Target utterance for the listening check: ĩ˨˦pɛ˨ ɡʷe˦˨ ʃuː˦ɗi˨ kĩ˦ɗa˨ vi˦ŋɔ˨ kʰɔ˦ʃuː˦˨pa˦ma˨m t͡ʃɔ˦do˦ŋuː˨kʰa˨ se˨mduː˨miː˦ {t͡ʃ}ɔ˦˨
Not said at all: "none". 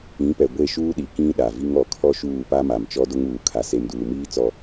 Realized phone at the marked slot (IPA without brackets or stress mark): t͡s